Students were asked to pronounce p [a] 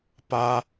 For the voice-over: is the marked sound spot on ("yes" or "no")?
yes